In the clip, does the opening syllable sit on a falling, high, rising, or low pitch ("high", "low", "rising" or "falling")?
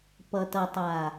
low